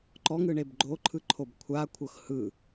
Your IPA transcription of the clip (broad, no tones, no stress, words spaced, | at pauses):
ǃɔŋɯɳeb ɡ͡ǃoǃʰɯǃʰob kʷʰakʷʰɤx hɯ